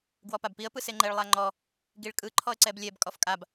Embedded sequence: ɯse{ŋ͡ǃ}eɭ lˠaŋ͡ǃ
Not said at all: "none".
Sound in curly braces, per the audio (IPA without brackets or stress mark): ŋ͡ǃ